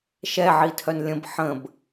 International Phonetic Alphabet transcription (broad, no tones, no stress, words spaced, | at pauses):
ʃɛʕi tʰœnlʲə̃b ħə̃b